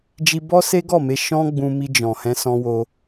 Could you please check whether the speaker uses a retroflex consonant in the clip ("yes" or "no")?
no